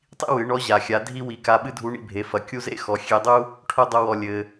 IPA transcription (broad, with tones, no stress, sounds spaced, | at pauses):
tˤ ḭ˥ w ɨ˩˧ ɳ ɔ˧˥ ʑ a˩ xʲ a˩˧ dʱ i˧ w i˩˧ k a˧ ɓ ɨ˥ dʱ u˧˥ ɳ ḭ˧ bʱ e˩˧ f ɐ˩ kʲ u˥ z ḛ˥ x ɔ˩˧ xʲ e˧ dˤ u˥ | ʈʰ o˥ dˤ o˧ w ɔ˩ lʲ ɘ˩